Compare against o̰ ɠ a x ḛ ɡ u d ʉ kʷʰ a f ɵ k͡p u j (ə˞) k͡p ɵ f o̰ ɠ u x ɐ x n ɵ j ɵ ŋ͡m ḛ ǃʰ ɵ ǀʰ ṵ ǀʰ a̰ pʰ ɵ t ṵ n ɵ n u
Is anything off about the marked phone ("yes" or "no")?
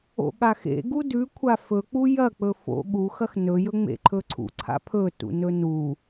yes